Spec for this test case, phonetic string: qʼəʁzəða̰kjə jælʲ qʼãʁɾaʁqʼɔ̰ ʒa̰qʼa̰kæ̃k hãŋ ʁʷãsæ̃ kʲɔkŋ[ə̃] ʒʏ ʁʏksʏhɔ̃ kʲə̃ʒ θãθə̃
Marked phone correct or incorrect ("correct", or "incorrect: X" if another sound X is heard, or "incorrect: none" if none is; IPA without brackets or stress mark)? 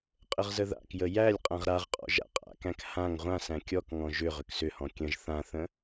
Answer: incorrect: ɔ̃